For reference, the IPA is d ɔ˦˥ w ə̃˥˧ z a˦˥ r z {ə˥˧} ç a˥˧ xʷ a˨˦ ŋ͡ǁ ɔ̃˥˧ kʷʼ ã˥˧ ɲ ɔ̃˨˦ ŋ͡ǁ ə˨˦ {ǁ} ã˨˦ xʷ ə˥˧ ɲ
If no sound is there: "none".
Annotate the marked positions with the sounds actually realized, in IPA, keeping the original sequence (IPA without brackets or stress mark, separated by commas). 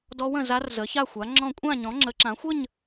ə˨˦, ǁ